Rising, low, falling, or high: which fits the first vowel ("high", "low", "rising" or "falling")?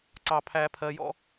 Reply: high